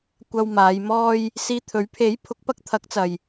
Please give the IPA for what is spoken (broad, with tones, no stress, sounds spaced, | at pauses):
kʷ ɐ˧ w m aː˨˧ j m ɔː˧ j | s iː˧ t̪ʰ ɵ˨˥ ɥ pʰ e˨˥ j pʰ ʊ˨˥ k̚ p ɐ˧ k̚ t̪ʰ ɐ˨˥ k̚ t͡s ɐ˨ j